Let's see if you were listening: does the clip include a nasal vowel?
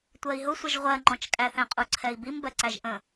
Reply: yes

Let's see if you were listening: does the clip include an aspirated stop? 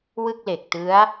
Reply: no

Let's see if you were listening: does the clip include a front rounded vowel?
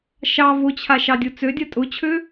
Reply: yes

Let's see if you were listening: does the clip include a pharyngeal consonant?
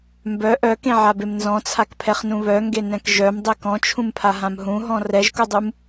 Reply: yes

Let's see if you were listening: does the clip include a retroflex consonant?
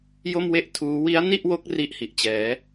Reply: no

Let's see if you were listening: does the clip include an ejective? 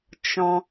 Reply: no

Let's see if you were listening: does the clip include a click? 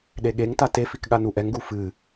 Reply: no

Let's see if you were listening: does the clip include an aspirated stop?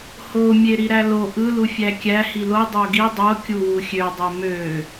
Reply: no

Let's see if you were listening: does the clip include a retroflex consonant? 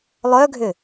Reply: no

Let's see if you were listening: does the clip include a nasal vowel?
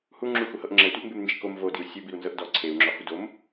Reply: no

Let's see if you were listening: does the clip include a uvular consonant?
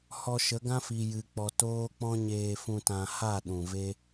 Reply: no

